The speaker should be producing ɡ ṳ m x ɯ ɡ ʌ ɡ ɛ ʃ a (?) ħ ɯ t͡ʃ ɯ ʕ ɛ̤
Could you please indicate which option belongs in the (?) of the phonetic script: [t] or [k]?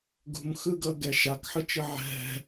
k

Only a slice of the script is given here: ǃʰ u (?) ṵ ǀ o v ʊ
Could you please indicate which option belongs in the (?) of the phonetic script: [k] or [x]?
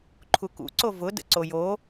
k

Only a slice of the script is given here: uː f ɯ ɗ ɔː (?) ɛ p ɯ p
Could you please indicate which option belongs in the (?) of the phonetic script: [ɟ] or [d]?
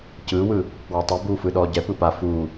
ɟ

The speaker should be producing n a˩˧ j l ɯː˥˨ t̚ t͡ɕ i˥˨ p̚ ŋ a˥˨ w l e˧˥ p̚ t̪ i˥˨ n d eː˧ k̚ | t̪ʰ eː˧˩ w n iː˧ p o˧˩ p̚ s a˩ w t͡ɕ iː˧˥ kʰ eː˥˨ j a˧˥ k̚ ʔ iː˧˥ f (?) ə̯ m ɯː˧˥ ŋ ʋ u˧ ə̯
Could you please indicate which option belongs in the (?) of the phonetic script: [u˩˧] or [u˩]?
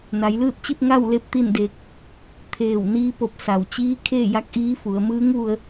u˩˧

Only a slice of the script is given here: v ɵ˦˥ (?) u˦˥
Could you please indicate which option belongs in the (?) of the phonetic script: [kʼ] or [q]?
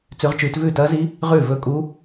kʼ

